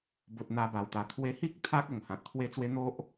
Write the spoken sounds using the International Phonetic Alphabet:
b o˨ t̚ n̪ a˧ b a˨˩ w t̪ a˨˩ t̪ʰ w e˧ h i˦ k̚ t̪ʰ a˦ k̚ o˨˩ ŋ h ã˨ t̚ t̪ʰ w e˦ t͡s w e˦ n̪ o˦ ʔ

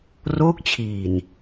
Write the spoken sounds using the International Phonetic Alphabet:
r oː˦˥ k̚ t͡ɕʰ iː˨˩ n

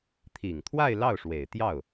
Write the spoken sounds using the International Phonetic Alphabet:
t̪ʰ i˨˩ ŋ t̪ʰ w a˥˧ ɪ̯ l ɑ˥˩ ʊ̯ ʂ w e˨˩ ɪ̯ t̪ j ɑ˥˩ ʊ̯

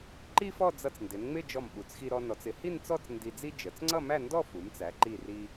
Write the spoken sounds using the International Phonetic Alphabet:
ǃ i˥ f ɔ˥˧ d͡z ʌ˧ t͡s n d ɪ˩˧ n ŋ͡m ɪ˥˧ d͡ʒ ɔ˧˩ m ɓ u˩˧ t͡s x i˧ ɾ ɔ˧ n ɔ˩˧ t͡s ɪ˩˧ h i˥˧ n t͡s ɔ˥˧ t͡s n d i˧ d͡z i˥ d͡ʒ ə˩˧ t͡s ŋ͡ǀ ʌ˥˧ m æ˥˧ n d ɔ˥˧ f u˩˧ m t͡s æ˩˧ ǃ i˧˩ r i˧

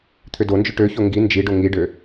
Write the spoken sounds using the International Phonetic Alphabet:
t̪ʰ ʏ d o n d͡ʒ ʏ ʈ ø ç o ŋ ɡ i n d͡ʒ i ɖ o ŋ i ɖ ø

